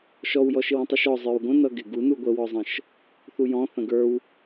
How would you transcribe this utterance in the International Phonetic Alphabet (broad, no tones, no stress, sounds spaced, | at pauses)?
ʃ ɔ w j ɔ ʃ ɪ w ə̃ tˤ u ʃ ɔ zˤ ə˞ w ɡʷ ə̃ n ʌ ɡ ɪ ɡ u n u ɡʷ ə w ɔ zˤ ə̃ ʃ | θ u j ɔ̃ θ ə̃ ɡ ə˞ w